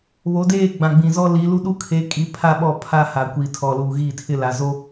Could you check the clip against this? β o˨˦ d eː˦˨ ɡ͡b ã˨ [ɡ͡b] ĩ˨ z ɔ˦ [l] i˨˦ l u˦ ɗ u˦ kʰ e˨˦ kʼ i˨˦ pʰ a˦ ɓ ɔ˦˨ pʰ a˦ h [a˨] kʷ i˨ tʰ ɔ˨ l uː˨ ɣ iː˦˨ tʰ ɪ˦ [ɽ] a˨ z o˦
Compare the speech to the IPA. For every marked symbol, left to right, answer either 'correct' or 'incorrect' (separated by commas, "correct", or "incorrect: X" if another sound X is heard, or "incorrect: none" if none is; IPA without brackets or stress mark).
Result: correct, correct, correct, incorrect: l